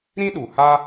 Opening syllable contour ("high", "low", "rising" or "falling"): high